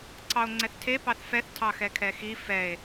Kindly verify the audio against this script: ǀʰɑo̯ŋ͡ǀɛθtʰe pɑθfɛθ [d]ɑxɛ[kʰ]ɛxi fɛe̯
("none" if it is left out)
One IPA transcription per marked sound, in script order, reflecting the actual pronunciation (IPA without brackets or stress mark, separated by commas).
tʰ, kʰ